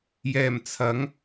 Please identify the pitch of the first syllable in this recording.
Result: low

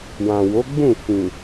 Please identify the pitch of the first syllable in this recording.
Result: low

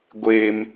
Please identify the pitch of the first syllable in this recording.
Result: high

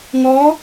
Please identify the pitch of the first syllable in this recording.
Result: rising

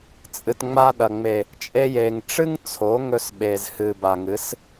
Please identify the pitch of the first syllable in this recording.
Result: low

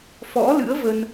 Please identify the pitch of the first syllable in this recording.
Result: rising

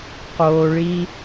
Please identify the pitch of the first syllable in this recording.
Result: low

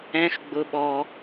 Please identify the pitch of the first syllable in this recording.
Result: high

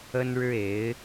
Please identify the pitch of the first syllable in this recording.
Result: high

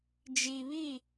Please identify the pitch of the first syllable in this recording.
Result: low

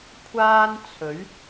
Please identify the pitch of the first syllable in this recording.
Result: high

